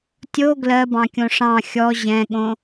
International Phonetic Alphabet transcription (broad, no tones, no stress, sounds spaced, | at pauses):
tʲ o ɡ l ɜ b ɑ̃ kʲ õ ʂ ɑ̃ xʲ ɔ ʑ ɛ̃ ɠ õ